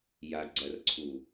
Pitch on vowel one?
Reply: low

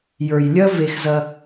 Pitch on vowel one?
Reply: low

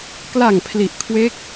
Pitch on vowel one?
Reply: low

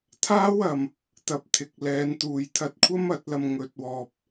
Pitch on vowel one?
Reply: high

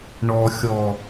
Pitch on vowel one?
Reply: low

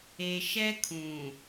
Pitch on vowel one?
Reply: low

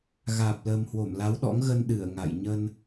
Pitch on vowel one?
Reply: low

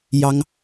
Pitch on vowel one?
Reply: high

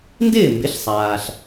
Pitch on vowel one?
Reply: falling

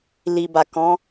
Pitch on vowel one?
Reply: low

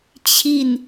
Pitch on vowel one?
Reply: falling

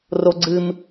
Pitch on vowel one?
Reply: high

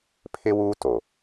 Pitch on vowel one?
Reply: high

